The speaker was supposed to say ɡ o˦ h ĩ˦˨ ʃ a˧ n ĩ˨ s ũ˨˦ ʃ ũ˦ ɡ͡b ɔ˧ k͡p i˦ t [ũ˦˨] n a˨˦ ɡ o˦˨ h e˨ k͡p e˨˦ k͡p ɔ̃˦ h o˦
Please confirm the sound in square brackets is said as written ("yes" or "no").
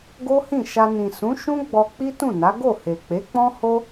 yes